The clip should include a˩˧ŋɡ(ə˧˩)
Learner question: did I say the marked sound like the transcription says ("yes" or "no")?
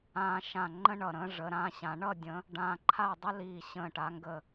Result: yes